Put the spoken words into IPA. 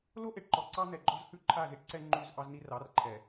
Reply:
l o˦ ʔ e˨ ʈ ǃ ɔ˨ ǀ ɑ˦ n̪ ɛ˨ ɡ͡ǃ ɔ˦ z h ʉ˦ ǃʰ a˦˨ z i˦ ʈ ǀ ɛ˦ ŋ͡ǃ ʉ˦˨ z ʔ ɑ˦ z n i˦ r ɑ˨˦ r ǃʰ ɛ˨

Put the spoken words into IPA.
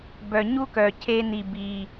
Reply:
b œ˨ ɲ u˥ k œ˨ cʰ e˦ n̪ i˨ b i˨

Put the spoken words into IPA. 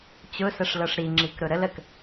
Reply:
t͡ɕ ʊ s ə ʂ l ɤ ʂ ɾ i ŋ͡ǁ i k ɾ ʊ ɾ ə l ə k

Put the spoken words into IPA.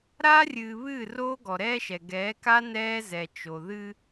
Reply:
ɾ aː˦ rʲ ɨː˨ β ɨː˦˨ r oː˦ ɡ ɔ˨ ɾ ɛː˦ ʃ ɛ˨ ɡ ɛː˨˦ k a˦ n ɛː˦ z ɛ˨ t͡ʃ o˨ ð ɨ˦

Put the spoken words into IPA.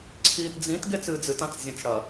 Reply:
ǀʰ iː t d͡z ĩ t ɡ e t͡s ɨː d͡z ɨ t ã t͡s zʲ ɐ̃ t͡s ɽ ɐ

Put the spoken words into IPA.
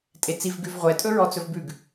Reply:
tʼ e t͡s i v ɡ ʉ v ʁʷ ɛ tʼ ɵ ɹ ɔ t͡s ɵ v b ʉ ɡ

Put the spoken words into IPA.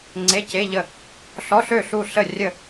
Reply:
ŋ͡ǀ e˧˥˧ c e˧˥˧ ʎ ə˥˨ | ɬ ɔ˧˥˧ ɬ ø˥˨ ɬ u˥˨ ɬ ə˥˨ rʲ ə˥˨

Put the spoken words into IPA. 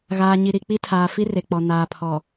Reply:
ɣ aː˨ ɲ i˨ ɾ i˨ k͡p i˦ tʰ aː˨ f i˦ r e˨ k͡p ɔ˨ n aː˨ pʰ ɔ˨

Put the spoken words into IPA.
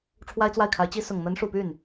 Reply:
ʈ͡ʂʰ w a˥ ɪ̯ t͡s w a˥˩ ɪ̯ kʰ a˧˥ ɪ̯ t͡ɕ i˥ s ʊ˨˩ ŋ n̪ ə˧˥ n ʂ u˨˩ p y˥˩ n

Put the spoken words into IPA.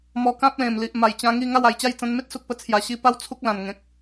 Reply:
m ɔ˧ k ã˦ p̚ l ẽ˨˩ m l i˨ ʔ m a˨˩ j t͡ɕ ã˧ ŋ i˥˧ ŋ a˥˧ w a˨˩ j t͡ɕ a˥˧ j t͡s ã˧ n m e˦ t̚ s u˨ k̚ p ə˧ t͡sʰ j a˨˩ ɕ i˧ p a˦ w t͡sʰ u˦ k̚ l ã˨˩ n ŋ ẽ˨ k̚

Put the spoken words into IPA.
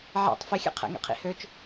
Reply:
ʕ ɛ̰ tˤ f i xʲ ɛ̰ qʰ ɛ̰ ŋ ɛ̰ qʰ ḭ h ø t͡ʃ

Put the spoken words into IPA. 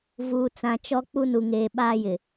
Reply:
v uː˨ t͡s ã˨ t͡ʃ ɔ˦ k͡p u˦ n u˨ ŋ eː˨ ɓ aː˦ j ɪ˨

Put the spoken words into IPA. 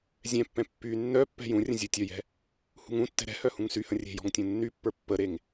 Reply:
zʲ ɛ̃ pː ɛ̃ pː y nː œ pː ɛ̤ j ũ rʲ ə̃ zʲ u tʲ œ j ɛ̤ | h ṳ ŋ ũ tː ɛ̤ ɾ ɛ̤ h œ h ũ ŋ s y h ə̃ rʲ e̤ j ɔ̤ ŋ tʲ ũ nː y pː ə˞ pː ə ɾ e ŋ

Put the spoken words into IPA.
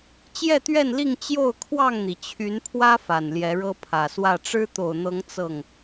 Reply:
t͡ɕ j ɛ˥˨ t̪ ɥ ɛ˥˨ n l i˥˨ ŋ t͡ɕ j o˥˨ ʊ̯ kʰ w ɑ˥˨ ŋ n̪ i˩ t͡ɕʰ y˨˦ n pʰ w ä˦ f a˨˩ n l j ɛ˨˦ ɻ ɤ˦ pʰ ä˨˩ s w ä˥˨ ʈ͡ʂ ɻ̩˦ t̪ o˨˩ ʊ̯ n̪ ɤ˨˦ ŋ t͡s ɤ˥˨ ŋ

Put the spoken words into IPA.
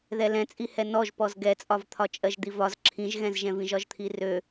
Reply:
ð ɛ l ɛ̃ t͡sʼ i h ɛ n ɔ ʒ p ɔ z ɡ ɛ t͡sʼ ɒ v t̪ʰ ɒ t͡ʃʼ ɜ ʒ d̪ i v ɒ z ǁʰ ĩ ʒ ɣ ɛ̃ z ʒ ɛ̃ v ĩ ʒ ɒ ʒ t̪ʰ i r ø

